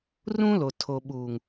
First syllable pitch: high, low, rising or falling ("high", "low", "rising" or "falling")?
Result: high